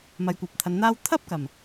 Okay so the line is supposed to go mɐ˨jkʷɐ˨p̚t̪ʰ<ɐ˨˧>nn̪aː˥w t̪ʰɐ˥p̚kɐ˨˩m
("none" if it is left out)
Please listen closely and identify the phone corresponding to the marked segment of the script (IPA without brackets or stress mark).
ɐ˨˧